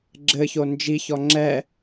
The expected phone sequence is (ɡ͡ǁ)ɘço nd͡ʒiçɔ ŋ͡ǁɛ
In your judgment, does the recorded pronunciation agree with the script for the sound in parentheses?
yes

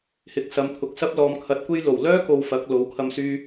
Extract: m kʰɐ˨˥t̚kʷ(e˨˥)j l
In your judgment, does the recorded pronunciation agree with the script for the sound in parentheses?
no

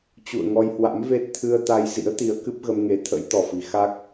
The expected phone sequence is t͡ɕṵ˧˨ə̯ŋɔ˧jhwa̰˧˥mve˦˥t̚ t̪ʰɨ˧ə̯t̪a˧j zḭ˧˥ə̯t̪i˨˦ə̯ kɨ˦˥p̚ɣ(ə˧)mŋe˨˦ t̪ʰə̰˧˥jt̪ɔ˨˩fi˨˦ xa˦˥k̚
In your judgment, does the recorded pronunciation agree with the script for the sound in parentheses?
yes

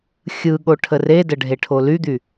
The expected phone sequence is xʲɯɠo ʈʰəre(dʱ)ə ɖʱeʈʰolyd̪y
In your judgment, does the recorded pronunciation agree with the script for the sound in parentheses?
no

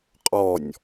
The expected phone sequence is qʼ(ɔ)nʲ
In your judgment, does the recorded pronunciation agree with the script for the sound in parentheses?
yes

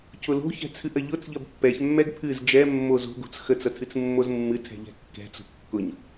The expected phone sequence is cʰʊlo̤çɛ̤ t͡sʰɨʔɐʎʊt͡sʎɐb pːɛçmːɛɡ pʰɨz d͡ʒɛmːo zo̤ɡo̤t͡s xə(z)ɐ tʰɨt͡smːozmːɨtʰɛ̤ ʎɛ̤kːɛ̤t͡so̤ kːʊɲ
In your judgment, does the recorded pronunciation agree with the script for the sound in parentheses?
no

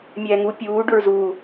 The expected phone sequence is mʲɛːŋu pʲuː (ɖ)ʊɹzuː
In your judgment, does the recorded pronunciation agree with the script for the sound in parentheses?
yes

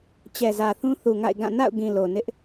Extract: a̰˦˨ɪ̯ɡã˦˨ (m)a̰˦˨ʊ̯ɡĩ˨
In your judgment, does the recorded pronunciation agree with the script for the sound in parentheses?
no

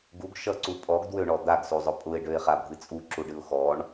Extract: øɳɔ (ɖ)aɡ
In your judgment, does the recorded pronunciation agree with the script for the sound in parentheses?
no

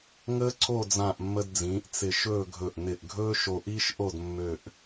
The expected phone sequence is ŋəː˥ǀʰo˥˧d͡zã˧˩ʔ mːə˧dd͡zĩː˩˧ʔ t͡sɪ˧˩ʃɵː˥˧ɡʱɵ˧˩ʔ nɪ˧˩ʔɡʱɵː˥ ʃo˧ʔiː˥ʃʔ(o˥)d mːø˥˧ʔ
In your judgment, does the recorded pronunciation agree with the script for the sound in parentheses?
no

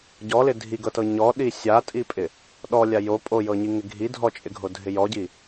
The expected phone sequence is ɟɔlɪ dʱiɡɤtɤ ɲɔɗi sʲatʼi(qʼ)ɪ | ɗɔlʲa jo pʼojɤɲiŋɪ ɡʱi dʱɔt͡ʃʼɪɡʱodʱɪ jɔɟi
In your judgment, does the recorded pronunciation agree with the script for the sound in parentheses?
no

